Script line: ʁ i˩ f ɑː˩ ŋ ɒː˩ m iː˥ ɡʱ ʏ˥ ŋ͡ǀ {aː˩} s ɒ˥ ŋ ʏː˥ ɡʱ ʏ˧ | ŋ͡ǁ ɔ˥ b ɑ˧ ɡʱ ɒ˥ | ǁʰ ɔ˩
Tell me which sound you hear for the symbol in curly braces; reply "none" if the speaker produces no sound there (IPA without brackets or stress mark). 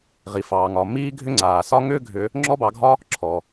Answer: aː˩